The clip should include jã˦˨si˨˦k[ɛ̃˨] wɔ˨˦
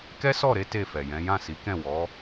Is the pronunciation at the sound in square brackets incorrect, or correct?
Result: incorrect